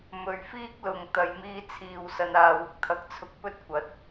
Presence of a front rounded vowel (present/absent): absent